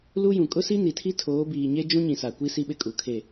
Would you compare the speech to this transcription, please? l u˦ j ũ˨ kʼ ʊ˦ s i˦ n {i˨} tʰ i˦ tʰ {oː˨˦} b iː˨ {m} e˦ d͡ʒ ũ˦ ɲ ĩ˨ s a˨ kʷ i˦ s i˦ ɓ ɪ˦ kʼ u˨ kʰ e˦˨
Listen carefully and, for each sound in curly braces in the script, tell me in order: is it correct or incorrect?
correct, correct, incorrect: ɲ

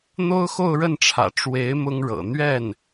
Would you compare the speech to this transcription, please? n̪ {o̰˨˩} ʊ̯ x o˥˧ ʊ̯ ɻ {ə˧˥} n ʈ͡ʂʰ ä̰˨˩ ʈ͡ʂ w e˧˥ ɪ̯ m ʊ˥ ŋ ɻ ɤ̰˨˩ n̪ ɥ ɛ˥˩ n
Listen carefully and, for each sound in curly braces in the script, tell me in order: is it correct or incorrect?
incorrect: o˥, incorrect: ə˥˩

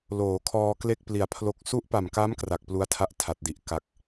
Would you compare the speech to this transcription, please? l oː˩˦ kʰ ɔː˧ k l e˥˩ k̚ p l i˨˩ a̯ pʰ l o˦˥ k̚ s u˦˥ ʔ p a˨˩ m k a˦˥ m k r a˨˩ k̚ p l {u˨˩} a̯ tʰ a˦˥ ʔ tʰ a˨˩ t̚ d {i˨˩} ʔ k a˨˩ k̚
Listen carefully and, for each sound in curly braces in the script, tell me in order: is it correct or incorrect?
incorrect: u˦˥, correct

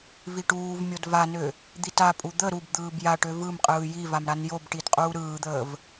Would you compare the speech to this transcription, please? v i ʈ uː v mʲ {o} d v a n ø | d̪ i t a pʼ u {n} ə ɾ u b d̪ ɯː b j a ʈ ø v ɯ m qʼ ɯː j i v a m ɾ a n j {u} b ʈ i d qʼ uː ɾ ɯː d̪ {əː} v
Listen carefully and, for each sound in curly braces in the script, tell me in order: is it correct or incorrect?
correct, incorrect: d̪, incorrect: o, correct

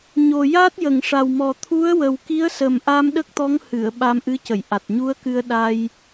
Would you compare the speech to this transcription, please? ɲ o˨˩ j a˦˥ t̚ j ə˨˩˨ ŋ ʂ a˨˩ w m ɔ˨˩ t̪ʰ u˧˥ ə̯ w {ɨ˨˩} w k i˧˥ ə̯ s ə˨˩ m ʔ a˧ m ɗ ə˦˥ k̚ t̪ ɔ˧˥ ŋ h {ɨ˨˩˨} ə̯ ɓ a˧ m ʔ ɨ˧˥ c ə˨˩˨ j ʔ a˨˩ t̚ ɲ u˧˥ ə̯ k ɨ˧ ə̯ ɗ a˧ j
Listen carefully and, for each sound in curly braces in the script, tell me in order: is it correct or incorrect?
incorrect: ə˨˩, correct

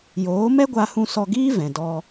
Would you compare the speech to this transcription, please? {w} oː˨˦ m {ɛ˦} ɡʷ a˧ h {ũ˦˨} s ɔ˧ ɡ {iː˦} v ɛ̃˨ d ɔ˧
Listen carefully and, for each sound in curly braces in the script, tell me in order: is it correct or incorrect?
incorrect: j, correct, incorrect: ũ˧, correct

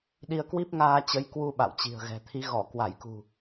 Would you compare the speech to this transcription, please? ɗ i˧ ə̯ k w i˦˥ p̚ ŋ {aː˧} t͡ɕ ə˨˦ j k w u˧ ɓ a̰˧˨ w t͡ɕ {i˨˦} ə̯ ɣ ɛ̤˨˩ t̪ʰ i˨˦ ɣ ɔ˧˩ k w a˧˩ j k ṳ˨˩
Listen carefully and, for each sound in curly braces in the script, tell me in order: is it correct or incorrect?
correct, incorrect: i̤˨˩

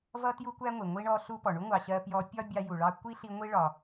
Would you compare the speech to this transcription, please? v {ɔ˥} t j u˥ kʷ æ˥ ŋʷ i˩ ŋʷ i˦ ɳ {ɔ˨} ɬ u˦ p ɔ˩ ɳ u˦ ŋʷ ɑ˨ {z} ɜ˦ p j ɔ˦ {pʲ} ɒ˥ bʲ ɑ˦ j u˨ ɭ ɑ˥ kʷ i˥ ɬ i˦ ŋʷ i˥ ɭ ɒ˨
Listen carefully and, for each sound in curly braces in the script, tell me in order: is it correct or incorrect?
incorrect: ʌ˥, incorrect: ɔ˦, incorrect: ɕ, correct

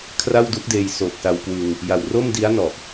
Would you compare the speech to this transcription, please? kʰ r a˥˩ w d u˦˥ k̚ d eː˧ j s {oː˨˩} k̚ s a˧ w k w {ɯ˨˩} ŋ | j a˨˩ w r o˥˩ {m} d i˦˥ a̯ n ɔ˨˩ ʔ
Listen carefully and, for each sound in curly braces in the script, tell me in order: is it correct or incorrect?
correct, incorrect: ɯ˧, correct

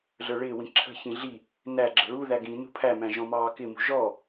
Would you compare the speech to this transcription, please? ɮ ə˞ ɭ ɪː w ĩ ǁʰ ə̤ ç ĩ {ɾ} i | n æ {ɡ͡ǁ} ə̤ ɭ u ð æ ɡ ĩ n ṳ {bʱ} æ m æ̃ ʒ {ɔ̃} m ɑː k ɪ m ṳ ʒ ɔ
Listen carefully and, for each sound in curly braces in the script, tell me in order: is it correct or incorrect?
incorrect: ɮ, correct, incorrect: pʰ, correct

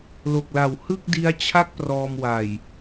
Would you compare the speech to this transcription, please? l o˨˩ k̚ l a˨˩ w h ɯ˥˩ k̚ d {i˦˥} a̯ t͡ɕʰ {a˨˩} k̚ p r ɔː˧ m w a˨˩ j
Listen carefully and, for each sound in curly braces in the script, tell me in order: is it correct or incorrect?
correct, incorrect: a˥˩

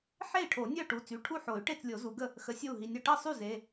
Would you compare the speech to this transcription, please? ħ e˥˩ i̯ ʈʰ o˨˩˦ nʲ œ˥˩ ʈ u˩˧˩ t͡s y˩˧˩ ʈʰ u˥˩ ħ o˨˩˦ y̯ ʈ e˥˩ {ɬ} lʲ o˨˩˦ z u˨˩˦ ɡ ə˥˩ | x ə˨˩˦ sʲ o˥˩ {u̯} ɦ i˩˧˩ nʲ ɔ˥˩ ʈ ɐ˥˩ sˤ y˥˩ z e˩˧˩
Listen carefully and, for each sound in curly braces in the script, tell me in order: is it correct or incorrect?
incorrect: t͡s, correct

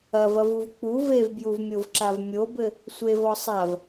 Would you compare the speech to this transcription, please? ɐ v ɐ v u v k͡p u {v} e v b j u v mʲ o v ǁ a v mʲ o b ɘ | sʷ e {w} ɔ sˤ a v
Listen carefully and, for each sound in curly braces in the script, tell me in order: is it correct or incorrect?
correct, incorrect: v

